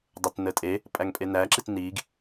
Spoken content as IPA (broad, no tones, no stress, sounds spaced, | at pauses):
dˤ ə t n ə tʼ e | pʼ æ ŋ pʼ e n æ ǁ i t n i ɡ